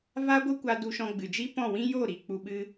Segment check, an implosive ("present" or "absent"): present